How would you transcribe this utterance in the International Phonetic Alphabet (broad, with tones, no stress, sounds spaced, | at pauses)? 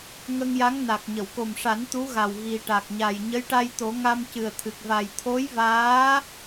ŋ ə˧ ŋ j a˧˥ ŋ n a˨˩ k̚ ɲ ə˨˩˨ w k o˨˩ m ʂ a˨˩˦ n t̪ u˧˥ ɣ a˨˩ w ɣ i˨˩ ʈ a˨˩ k̚ ɲ a˨˩ j ɲ ə˧˥ j ʈ a˧ j t̪ o˨˩˦ ŋ a˧ m c ɨ˨˩ ə̯ t̪ʰ ɨ˨˩ k̚ v a˨˩ j t̪ʰ o˧˥ j v aː˧˥